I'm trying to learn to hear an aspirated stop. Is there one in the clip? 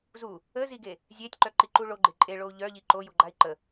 no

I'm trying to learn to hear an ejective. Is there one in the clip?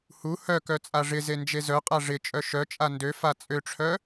yes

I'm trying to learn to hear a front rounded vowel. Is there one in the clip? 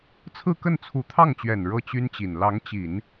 yes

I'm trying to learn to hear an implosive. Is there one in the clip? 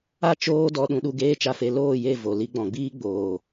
yes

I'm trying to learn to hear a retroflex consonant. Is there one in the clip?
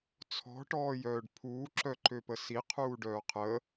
yes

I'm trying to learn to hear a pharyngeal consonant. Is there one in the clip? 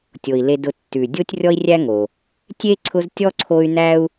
no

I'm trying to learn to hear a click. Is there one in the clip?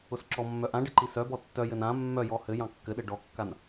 yes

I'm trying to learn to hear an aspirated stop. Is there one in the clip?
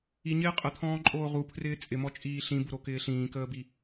yes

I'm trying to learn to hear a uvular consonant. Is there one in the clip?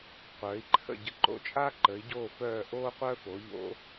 yes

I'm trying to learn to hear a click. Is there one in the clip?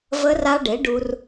no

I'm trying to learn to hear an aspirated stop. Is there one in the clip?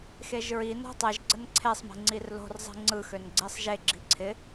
yes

